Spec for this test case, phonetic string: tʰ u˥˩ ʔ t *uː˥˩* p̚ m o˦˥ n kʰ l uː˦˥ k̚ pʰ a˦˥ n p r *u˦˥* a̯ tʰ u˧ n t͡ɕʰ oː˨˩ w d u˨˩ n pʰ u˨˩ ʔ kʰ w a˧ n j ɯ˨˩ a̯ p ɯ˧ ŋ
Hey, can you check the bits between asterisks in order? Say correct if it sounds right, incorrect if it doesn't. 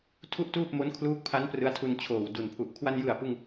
correct, incorrect

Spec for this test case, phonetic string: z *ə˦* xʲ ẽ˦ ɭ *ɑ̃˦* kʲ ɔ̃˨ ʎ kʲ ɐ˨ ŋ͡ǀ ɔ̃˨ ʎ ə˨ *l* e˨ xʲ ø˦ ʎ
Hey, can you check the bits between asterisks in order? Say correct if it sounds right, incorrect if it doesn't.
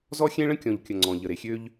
incorrect, incorrect, incorrect

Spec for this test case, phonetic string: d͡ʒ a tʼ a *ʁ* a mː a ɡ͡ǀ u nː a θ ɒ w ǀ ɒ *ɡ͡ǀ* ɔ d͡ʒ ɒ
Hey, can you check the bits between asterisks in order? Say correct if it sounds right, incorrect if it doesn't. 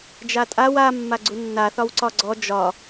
incorrect, correct

